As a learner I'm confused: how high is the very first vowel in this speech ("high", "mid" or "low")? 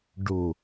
high